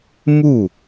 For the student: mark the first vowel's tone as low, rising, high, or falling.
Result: falling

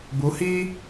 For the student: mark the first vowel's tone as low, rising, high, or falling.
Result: rising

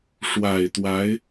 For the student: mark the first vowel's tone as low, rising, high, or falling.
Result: low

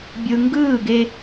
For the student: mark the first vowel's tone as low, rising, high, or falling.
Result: low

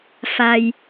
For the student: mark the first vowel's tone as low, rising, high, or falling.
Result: low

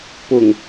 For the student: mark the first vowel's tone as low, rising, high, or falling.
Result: low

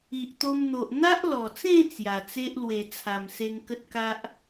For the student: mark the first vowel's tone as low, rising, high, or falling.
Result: low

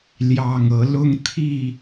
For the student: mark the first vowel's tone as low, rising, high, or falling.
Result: low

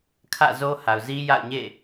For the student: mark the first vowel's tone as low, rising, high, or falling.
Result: falling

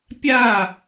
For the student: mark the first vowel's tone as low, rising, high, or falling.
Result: falling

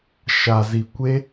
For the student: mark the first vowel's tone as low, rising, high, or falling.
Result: low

